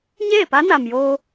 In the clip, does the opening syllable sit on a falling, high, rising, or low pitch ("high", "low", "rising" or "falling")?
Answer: falling